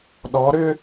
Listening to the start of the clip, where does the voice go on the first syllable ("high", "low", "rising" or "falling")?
rising